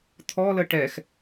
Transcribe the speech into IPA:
t̪ʰ ɔ l ə ʈ ɛ x

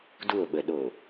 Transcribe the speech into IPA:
d u o̯ ɓ ə ɗ o

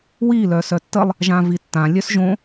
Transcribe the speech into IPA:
w i l œ s œ tː ə lˠ | ʒ ã v i tː ã lʲ œ s ʒ õ

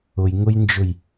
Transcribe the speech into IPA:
ʊ j ŋ ʊ j n d͡ʒ ʊ j

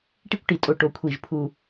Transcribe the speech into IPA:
ʈ i˥ kʷ ʈ i˧˩ tʼ o˧˩ ʈ o˧ kʷʰ i˧˩ ʒ pʰ u˧˩

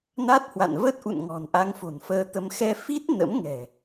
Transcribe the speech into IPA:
n a˦˥ t̚ h w a̰˧˨ n v ə˦˥ t̚ ʔ ṵ˧˨ n ŋ ɔ̤˨˩ n ʔ a˧ ŋ f o̤˨˩ n f əː˧ t̪ ə˧ m x ɛ˧ f i˦˥ t̚ n ə̰˧˥ m ŋ ɛ̤˨˩

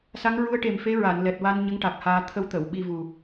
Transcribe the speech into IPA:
s a˧˥ ŋ ɹ u˧˥ ə̯ ʈ e˨˩ m f e˧˥ ɹ a˨˩˨ n l ɛ˨˩ t̚ w a˧ n ɲ ə˧˥ ŋ ʈ a˨˩ k̚ h aː˧ t̪ʰ ə˧ w t̪ ə˨˩˨ w ɓ i˧ v u˨˩

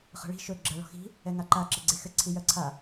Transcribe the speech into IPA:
χ ə̤ ɭ i̤ ʃ ɵ ɡ͡ǁ ɜ ɭ ɔ̤ x i̤ | ɛ ŋ a ǃ a ǁ ə ɡ͡ǀ e x ɘ ǀʰ i j ɜ ǀʰ a

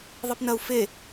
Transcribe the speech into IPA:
ðˤ i p n ɐ u̯ f e

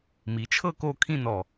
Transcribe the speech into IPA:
m i˩˧ t͡ʃʰ ɤ˥˧ k o˥˧ kʰ ĩ˥˧ n ɔ˧˩

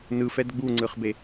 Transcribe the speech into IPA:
n ɯ f ɛ d ɡ͡b u ŋ͡ǀ ɯ χ b e

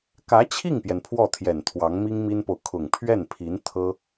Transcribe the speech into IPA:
k ä˧˥ t͡ɕʰ i˥˩ ŋ p j ɛ˩ n pʰ w ɔ˥˩ t̪ʰ j ɛ˨˩ n t̪ʰ w ɑ˧˥ ŋ m i˥ ŋ m i˥ n p o˨ ʊ̯ kʰ ʊ˨˩ ŋ pʰ ɥ ɛ˥˩ n pʰ i˧˥ n t̪ʰ ɤ˥

